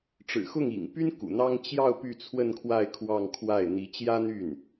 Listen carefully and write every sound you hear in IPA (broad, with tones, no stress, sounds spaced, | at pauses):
ʈ͡ʂ ɻ̩˨˩ x ʊ˥˩ ŋ ḭ˨˩ ŋ p y˥ n k ṵ˨˩ n̪ ɑ˥ ŋ t͡ɕ j ɑ˥˧ ʊ̯ p y˥˧ t͡sʰ w ə˥˧ n kʰ w a˥˧ ɪ̯ kʰ w ɑ˥˧ ŋ kʰ w a˥˩ ɪ̯ n̪ i˧˥ t͡ɕ j ä˥ n̪ y˥˩ n